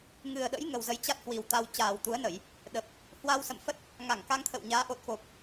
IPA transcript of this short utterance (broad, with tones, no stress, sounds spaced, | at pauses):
ŋ ɨ˨˩ ə̯ ɗ ə̰˧˥ j ŋ ə˨˩ w z ə˨˦ j t͡ɕ a˦˥ t̚ h w i˨˩ w t̪ a˧ w t͡ɕ aː˨˩ w t̪ u˨˦ ə̯ n ə˧˩˨ j | ɗ ə˨˩ p̚ | h w a˧ w s ə̰˧˨ m f ə˦˥ t̚ | ŋ a˧˩ ŋ k a˧ ŋ t̪ʰ ə̰˧˨ w ɲ aː˨˦ ʔ o˨˩ t̚ k o˨˩ p̚